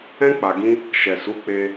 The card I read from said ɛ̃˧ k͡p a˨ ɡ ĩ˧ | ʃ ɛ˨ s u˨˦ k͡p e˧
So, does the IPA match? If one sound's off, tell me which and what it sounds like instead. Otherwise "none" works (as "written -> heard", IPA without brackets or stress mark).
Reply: none